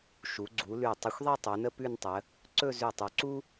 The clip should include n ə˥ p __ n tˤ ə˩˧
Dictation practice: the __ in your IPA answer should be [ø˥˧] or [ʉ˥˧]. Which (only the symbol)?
ʉ˥˧